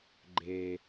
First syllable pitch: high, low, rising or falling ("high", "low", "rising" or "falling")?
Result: low